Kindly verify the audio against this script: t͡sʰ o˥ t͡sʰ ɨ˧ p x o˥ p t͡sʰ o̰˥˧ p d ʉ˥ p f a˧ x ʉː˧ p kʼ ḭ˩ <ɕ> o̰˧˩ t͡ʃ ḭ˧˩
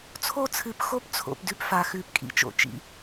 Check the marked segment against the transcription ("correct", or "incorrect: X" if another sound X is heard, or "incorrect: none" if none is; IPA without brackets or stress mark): incorrect: t͡ʃ